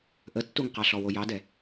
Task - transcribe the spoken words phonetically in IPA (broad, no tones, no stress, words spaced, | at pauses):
ʔətːuŋqɑɬɔ wojɑdɛ